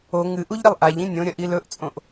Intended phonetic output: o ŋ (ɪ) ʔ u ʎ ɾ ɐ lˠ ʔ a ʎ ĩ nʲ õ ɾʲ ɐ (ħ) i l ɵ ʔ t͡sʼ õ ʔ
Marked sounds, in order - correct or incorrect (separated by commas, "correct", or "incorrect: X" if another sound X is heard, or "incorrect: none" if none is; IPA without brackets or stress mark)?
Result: incorrect: ɨ, incorrect: ʔ